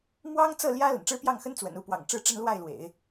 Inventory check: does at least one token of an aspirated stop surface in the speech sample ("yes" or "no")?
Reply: no